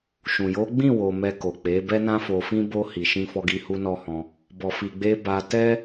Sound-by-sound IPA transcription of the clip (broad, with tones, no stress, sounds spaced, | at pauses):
ʃ ũ˨ j o˨˦ ɡ͡b ĩ˦˨ w o˨ m ɛ˧ k o˨ k͡p e˨˦ b ɛ˦ n ã˦ f o˧ f ĩ˦ b o˧ h i˨ ʃ ĩ˧ f ɔ˧ ɡ i˧ h u˦ n ɔ˦ h ɔ̃˧ | b ɔ˨ f i˨ ɡ͡b e˧ b a˧ t ɛ˦